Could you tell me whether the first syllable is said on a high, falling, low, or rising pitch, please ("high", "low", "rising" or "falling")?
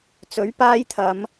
rising